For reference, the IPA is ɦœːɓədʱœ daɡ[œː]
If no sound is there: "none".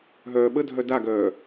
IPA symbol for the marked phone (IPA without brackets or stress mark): œː